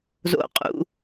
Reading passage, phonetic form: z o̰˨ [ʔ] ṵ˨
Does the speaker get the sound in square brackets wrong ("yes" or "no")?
yes